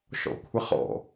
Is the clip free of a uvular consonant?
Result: no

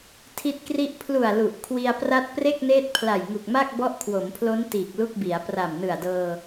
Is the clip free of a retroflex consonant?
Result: yes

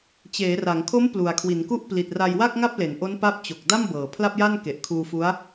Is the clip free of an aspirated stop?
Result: no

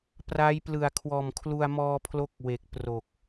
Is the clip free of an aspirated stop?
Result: no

